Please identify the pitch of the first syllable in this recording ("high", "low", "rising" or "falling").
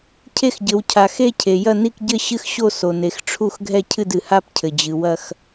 falling